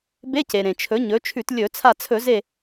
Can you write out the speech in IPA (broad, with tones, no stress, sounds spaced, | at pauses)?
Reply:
b e˧˥˧ c e˩ ɾ ẽ˩ t͡ʃʰ ɵ˩˥ ɲ ɵ˩˥ t͡ʃʰ ʉ˧˩˧ t lʲ ɵ˧˩˧ t͡sʰ a˧˩ t͡sʰ ɵ˧˩˧ z e˧˩